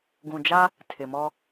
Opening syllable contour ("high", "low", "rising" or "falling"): low